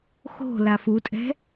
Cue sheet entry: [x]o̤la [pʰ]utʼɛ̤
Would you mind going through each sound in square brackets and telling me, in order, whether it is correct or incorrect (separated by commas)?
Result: correct, incorrect